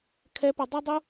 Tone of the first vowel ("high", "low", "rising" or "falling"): high